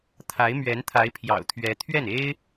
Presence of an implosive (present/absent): absent